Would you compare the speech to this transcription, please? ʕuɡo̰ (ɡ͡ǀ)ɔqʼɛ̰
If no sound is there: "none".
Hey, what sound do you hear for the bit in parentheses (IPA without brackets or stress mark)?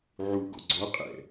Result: ɡ͡ǀ